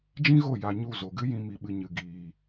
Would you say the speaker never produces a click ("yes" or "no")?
yes